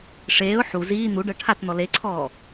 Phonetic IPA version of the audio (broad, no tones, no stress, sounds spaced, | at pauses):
ʂ eː ʊ̯ ħ u z iː n̪ u ɖ ɤ ʈʰ a t n̪ ɔ l e ǀʰ ɔː